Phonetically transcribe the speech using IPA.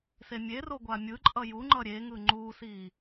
s e mʲ e r o ɡʷ a mʲ ɯ ǃʼ ʌ j u ŋ͡ǃ ʌ ɾʲ e ŋ ɯ ŋ͡ǃ u s i

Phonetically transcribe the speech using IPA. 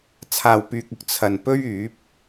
t͡sʰ aː˧ w p yː˧ k̚ ʊ˧ k̚ t͡sʰ ɐ˧ n p ɵ˥ ɥ yː˨˥ p̚

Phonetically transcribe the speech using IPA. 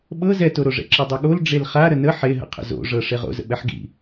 ɓ ɤ z ɛ t o ɾ o ʐ ɛ̰ ǁ ɤ dˤ ɤ ɠ o l ɖ͡ʐ e l χ a ɾ ə n ə ħ e ɦ ə̰ qʰ ə̰ z o̰ ʐ ɤ ʂ e ʁ o̰ z ə̰ ɓ ɛ ħ ɡ ḭ

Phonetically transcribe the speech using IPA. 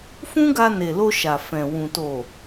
f ũ˦ ɡ a˧ n e˨ l o˧ ʃ a˨ f ɛ̃˨ w ũ˨ t o˨

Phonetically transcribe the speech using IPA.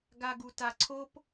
ɡ a ɡ u t a ǀʰ o p

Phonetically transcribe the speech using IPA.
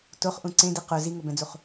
t o χ ʔ ũ ǀ ẽ d i q ʊ z i ŋ o b ɛ̃ d͡z u χ

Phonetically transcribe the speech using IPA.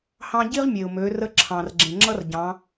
h ɑ̃˥ ɟ i˥ ʁ mʲ e˩ ʊ̯ m ø˩˧ r ə˧˥ ǁʰ ɑ̃˩ r ɡ͡ǁ ẽ˩ ŋ͡ǁ ʌ˥ r ɟ ɑ̃˩˧

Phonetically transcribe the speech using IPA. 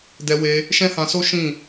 d ɛ˧ w e˧ | ʃ ɛ̃˦ h ã˧ s o˦ ʃ ĩ˦˨

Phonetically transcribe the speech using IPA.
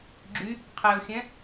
ɡ͡ǁ y | qʰ e o̯ xʲ ɛ̃

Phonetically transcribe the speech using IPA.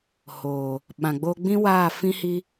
h oː˨ | ɓ ã˨ ɡ͡b oː˦ ɡ͡b ĩ˦ w aː˦˨ f ĩ˦ h i˦

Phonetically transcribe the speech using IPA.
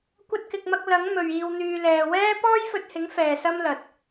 kʷ ɐ˧ t̚ k ɪ˨ k̚ m ɐ˧ k̚ l ɐ˨˥ ŋ m ɵ˨ ɥ iː˨ w n̪ yː˨ l ɛː˨ w ɛː˥ p ɔː˥ j f ɵ˧ t̚ h ɪ˨˥ ŋ f ɛː˨ s ɐ˥ m l ɐ˨ t̚

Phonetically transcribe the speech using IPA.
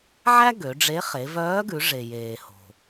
ʕ æ˥ ɡ ø˩˧ ɖ͡ʐ e˧˥ χ e˩˧ v œː˧˥ ɡ ʉ˩˧ ʐ e˩ j eː˩ h o̤˩

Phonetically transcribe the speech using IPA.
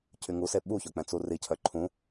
cʰ y ŋ u s e ɓ u ç œ k͡p ɛ̃ t͡s u r i cʰ œ ǃʰ ũ

